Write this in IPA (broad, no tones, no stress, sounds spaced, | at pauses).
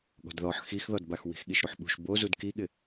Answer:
ɠ ɔ̤ d ð ɔ ħ x i x ð ɔ d b a x w i̤ x ɠ i ʃ ɾ u ħ ɓ ṳ ʃ b o z u d k i ɠ ɪ